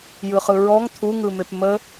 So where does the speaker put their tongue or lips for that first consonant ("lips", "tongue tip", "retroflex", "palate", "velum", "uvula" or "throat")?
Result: palate